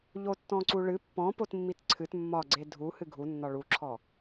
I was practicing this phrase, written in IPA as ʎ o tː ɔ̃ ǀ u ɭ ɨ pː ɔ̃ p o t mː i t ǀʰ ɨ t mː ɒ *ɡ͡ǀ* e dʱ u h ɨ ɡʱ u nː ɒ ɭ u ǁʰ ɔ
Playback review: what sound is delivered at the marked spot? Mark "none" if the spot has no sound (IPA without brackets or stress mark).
ɡ͡ǀ